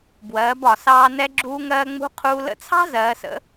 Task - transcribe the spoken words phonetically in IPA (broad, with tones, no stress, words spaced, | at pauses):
bwɜː˩˧bɒ˩sɑː˧ nɛ˧ɡ͡ǁuː˧ŋɜː˧ŋ͡mṳ˧˥ qʰuː˧ lə̰˧˥t͡sʰɑ̤˥ zɜː˩˧sə̰˧˥